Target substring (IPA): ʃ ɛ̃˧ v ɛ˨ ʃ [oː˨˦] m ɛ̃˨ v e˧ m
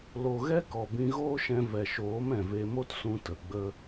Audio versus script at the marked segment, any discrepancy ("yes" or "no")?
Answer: no